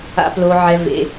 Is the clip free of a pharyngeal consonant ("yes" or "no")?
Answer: no